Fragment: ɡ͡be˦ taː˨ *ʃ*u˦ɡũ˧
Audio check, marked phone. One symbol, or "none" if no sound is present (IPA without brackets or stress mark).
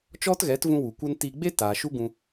ʃ